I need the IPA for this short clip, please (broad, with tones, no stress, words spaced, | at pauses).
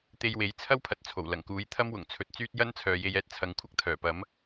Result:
t̪e˧jwe˨˥jt͡sʰɐ˥wpʰɐ˨t̚ t͡sʰo˨˩wlɐ˨˩ŋkuː˨˥j t̪ʰɐ˥mwʊ˨˩ŋt͡sʰɵ˨t̚ t͡syː˥t̚ jɐ˥nt͡sʰœː˨ je˧j ɛː˧t̚t͡sʰɐ˨˥ŋkʷʰɐ˥k̚ t̪ʰœː˨˩ pɐ˨˥m